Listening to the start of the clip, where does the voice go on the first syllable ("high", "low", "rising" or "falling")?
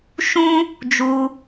high